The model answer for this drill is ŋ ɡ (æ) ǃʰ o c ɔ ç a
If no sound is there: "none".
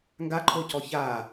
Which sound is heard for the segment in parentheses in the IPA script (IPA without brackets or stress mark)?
a